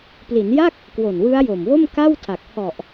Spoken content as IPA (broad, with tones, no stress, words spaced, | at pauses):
pli˩˦nja˥˩k̚ | kwo˨˩nwɯ˦˥a̯jo˨˩mwo˥˩m ka˥˩wtʰa˨˩k̚ hɔ˨˩ʔ